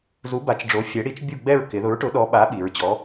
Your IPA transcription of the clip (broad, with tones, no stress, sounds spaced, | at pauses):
z u˨˥ b a˨˥ t͡ʃ ɖ͡ʐ o˨˥ fʲ ɛ˨˥ ɽ i˨˥ t͡ʃ bʲ u˦˨ ɡ͡b ɛ˦˨ ɹ k ɪ˩˧ ð ʊ˨˥ ɹ ʈ ʊ˨˥ ɗ ɔ˨˥ ɓ a˨˥ ɓ i˩˧ ɹ t͡ɕ ɔ˨˥